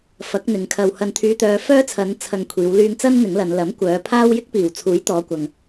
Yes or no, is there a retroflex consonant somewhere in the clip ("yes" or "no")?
no